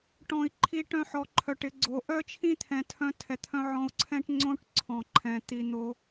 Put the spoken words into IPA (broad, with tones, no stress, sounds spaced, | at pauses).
ʈ ɔ̃˨ i̯ ǃʰ i˧ ʈ œ̃˧ ħ ɔ˧ ǃʰ œ˨ ʈ ɪ˧ ɡ͡ǀ o˨˦ ʔ œ˦ t͡ʃʰ ĩ˦ t̪ʰ ɛ̃˨ tʰ œ̃˧ tʰ ɛ˨ t̪ʰ œ̃˧ ʕ ɔ̃˧ u̯ ǀʰ ɛ̃˦ ʈ ŋ͡ǀ õ˦ ʈ ǀʰ ɔ̃˨ ǃʰ ɛ̃˨ t̪ i˧ n̪ o˦